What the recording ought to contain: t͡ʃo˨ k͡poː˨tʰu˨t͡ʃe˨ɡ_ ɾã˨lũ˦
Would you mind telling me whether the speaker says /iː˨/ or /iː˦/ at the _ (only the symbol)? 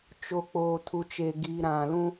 iː˨